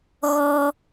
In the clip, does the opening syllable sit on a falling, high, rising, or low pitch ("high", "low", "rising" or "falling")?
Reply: high